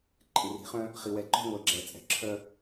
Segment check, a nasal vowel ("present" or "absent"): present